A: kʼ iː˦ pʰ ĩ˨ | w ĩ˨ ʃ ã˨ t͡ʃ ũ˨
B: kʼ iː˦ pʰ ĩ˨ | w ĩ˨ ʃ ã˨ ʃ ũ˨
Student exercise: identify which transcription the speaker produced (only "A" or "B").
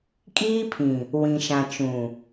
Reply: A